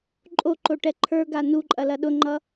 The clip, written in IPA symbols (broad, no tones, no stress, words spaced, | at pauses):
ǃʼoǃo ʈɛǃʰə˞ɡa nuǃʼɐ lɐɗʊŋ͡ǃʌ